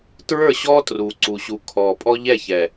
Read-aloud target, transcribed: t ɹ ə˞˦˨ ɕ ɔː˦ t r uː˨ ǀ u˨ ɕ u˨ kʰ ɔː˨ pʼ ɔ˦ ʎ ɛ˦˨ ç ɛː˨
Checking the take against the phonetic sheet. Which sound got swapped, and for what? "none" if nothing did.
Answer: none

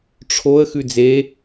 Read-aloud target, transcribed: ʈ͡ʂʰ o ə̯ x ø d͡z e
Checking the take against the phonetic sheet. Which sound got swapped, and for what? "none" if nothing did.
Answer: ø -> ʉ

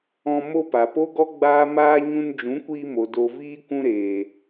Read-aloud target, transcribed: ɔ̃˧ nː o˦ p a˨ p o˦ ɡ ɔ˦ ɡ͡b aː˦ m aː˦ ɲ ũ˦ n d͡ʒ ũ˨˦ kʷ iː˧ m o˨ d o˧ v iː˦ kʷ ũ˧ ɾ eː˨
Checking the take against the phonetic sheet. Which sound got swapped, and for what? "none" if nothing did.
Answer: nː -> m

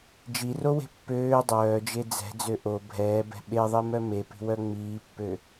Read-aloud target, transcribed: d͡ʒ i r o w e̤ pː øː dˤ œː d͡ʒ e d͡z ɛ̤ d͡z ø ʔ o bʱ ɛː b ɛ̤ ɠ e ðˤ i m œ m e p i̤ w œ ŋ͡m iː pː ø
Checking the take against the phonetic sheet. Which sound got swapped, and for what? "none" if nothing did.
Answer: ɠ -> ɓ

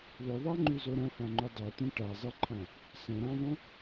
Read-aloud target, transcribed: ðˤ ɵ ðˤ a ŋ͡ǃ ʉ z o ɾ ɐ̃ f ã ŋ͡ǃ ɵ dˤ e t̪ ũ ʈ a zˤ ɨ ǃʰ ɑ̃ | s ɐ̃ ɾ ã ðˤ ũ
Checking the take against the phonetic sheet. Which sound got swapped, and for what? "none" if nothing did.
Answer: ɑ̃ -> ã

